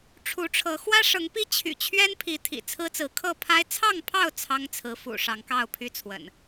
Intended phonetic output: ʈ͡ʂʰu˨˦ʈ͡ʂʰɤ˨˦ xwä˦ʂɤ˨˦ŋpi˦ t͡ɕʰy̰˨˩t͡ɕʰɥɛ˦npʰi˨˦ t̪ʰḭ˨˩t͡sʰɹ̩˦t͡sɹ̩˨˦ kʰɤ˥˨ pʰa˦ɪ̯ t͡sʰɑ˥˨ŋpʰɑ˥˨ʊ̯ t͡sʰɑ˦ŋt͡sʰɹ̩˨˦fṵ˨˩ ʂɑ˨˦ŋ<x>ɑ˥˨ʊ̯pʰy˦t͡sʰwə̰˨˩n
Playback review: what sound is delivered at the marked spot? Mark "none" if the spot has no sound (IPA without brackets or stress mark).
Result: k